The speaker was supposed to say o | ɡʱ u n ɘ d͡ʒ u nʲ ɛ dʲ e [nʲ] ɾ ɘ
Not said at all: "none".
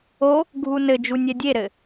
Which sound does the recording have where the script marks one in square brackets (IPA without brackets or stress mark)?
none